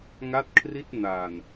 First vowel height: low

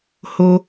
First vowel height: mid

